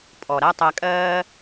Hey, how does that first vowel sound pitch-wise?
low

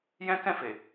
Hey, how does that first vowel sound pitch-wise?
high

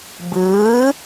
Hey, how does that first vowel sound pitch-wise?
rising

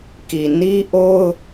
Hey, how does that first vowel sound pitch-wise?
low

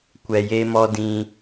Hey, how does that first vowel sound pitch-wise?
low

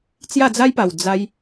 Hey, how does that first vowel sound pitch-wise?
falling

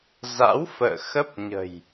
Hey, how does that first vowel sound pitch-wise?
rising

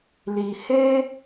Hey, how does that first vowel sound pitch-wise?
low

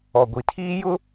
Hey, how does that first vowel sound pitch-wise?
low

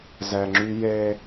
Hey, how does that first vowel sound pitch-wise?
low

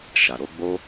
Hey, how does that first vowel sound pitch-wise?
low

